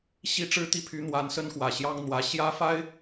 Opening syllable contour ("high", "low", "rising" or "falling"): high